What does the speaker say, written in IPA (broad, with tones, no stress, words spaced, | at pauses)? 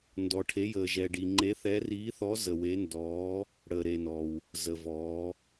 ndɔ˨ʈʰe˨˦ jəː˨ʒɛ˨ɖi˨ ŋ͡ǃe˨˦θɛ˨˦riː˨˦θɔ˨˦ zə˨we˨˦ ndɔː˨˦ | ɽəː˨ɾe˨nɔː˨w | zə˨vɔː˨˦